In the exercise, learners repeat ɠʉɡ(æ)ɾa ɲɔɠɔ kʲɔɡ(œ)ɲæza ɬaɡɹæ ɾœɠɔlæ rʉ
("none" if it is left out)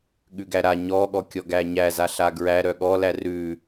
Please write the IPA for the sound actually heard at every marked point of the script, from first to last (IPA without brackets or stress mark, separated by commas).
æ, æ